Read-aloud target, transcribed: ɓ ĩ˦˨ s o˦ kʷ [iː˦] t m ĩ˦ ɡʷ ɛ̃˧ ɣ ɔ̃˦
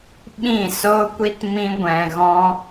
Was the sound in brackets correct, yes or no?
no